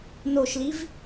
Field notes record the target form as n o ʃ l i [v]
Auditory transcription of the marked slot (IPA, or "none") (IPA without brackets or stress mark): v